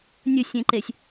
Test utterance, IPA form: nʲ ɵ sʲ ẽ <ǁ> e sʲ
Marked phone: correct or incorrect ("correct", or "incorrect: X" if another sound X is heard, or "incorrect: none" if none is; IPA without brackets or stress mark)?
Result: incorrect: ǃ